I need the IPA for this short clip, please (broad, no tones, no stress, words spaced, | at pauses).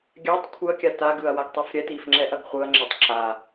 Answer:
ɡʲatˤ kʷʰɯɐ̯kʲa taɡɯɐ̯waɡtˤif ɾʲɛtifŋ͡ǁɛʔɐɡ χʷɯɐ̯ŋ͡ǁɛtˤ ǁa